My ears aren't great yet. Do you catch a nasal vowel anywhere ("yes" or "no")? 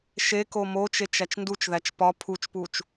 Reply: no